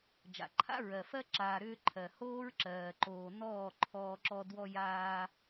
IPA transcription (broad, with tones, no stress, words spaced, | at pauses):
d͡ʒa̰˨ǃʰa̰˦ɹɜ˨fɜ˦ ǁaː˨ɾʏː˧ ǃʰɜ˨ hoː˦ɹǁɜː˨ǃoː˨ nɔː˦˨ǃʰɔː˧ǁɔ˧ dwɔ˧jaː˧